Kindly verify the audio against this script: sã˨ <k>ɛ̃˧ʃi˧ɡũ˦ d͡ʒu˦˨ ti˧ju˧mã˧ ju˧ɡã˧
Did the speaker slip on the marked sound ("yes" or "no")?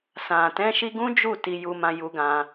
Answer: yes